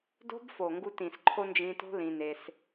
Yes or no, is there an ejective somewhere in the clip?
no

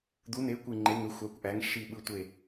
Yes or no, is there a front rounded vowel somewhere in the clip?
yes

